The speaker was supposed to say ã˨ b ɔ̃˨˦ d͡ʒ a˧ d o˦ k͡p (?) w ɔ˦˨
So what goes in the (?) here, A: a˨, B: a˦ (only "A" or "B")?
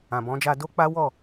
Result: B